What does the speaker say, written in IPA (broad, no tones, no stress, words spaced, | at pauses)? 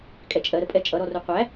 kʼɛt͡ʃʼɜɾəpʼɛ t͡ʃʼʌɾɔru qʷæ